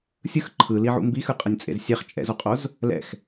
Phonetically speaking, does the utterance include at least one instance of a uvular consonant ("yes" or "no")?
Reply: yes